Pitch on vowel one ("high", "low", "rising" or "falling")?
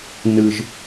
low